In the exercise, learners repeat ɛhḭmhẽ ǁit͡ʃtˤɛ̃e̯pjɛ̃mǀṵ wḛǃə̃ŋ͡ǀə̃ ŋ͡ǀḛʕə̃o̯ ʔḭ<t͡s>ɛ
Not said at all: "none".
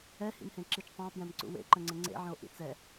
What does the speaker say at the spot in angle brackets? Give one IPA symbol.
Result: t͡s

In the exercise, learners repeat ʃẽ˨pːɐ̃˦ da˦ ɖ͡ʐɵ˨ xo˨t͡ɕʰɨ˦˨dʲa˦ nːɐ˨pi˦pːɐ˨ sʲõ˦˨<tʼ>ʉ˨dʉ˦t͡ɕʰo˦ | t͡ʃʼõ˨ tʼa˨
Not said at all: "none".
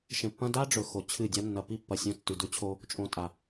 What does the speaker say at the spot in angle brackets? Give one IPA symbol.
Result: tː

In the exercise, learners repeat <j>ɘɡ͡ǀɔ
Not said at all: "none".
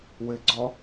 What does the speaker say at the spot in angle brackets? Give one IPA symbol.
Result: w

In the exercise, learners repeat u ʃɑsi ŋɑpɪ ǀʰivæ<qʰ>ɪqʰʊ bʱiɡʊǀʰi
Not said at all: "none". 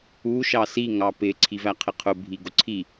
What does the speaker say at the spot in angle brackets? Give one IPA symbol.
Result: qʰ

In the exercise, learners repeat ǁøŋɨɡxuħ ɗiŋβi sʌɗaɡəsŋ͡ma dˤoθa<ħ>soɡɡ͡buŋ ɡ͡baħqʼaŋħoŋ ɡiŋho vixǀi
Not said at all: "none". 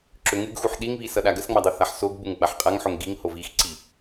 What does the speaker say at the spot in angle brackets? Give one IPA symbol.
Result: ħ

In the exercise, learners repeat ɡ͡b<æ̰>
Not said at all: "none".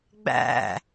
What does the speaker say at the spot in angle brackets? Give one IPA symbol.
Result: æ̰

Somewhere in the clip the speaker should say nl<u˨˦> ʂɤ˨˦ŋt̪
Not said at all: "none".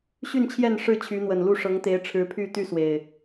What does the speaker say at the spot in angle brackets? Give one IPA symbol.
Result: u˥˨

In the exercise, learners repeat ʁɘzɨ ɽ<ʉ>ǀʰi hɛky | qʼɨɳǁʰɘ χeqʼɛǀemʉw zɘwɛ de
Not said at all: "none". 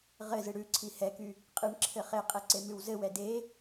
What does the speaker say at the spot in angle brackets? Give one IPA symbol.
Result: ʉ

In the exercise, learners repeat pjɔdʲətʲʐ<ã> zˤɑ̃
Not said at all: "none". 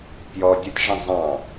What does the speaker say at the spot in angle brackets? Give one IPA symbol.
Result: ə̃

